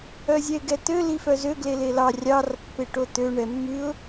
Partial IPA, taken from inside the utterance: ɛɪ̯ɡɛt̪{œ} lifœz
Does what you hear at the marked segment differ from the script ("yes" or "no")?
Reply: yes